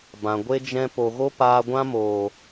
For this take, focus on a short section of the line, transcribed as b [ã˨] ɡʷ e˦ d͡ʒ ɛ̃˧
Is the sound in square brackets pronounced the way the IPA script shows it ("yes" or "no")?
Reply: yes